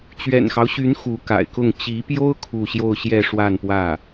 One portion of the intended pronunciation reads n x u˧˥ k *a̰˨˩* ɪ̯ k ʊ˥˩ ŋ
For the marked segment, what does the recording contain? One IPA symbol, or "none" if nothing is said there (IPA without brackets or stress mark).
a̰˨˩